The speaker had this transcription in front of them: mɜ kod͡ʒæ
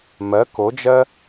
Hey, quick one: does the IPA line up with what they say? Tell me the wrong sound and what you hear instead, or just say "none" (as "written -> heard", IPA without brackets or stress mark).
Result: æ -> ɜ